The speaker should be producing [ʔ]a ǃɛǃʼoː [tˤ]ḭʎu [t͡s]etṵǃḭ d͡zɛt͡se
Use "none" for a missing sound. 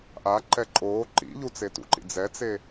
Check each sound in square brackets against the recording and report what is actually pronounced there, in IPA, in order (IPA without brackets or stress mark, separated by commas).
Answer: ʔ, ǃ, t͡s